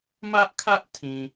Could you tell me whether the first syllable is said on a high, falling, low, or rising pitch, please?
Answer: high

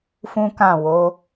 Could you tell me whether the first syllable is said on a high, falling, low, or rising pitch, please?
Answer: high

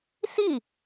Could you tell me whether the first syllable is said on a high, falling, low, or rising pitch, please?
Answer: falling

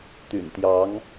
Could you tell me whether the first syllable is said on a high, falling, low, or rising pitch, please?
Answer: low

